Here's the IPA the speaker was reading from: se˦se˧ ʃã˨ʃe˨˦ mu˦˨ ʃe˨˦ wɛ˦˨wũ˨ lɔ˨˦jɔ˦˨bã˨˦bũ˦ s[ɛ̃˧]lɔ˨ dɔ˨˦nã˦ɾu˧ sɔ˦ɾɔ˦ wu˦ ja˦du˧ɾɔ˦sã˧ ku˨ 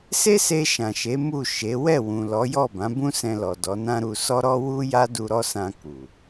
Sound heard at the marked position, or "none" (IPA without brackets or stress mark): ɛ̃˧